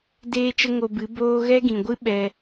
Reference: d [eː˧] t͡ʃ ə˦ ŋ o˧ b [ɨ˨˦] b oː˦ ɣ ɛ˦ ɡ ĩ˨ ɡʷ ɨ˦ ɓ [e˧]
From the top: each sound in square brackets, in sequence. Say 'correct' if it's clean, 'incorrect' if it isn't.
incorrect, correct, incorrect

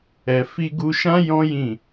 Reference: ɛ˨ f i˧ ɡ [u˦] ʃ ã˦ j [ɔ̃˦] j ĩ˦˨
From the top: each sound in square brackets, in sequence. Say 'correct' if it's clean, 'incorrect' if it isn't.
incorrect, correct

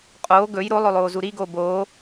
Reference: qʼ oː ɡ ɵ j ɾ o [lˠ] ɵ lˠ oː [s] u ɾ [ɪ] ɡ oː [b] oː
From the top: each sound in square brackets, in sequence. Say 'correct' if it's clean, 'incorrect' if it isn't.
correct, incorrect, incorrect, correct

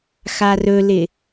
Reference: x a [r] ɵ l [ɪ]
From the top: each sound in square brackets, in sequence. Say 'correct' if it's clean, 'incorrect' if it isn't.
correct, correct

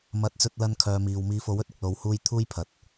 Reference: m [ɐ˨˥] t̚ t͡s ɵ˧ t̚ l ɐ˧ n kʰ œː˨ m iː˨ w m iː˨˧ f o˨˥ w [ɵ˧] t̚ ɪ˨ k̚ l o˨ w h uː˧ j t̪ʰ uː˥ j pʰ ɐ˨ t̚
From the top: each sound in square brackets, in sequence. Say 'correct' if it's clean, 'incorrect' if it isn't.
correct, incorrect

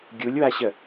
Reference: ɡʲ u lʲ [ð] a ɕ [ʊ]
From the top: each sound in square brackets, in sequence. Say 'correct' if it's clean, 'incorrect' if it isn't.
incorrect, incorrect

